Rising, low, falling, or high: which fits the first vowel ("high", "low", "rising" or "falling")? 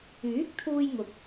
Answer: rising